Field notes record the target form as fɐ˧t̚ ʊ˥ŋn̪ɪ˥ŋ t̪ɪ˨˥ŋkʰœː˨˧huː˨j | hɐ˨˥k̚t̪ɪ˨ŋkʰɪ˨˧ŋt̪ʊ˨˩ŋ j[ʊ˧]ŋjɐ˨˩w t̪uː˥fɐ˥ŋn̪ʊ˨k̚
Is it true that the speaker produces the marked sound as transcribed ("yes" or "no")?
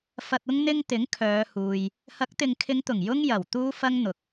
no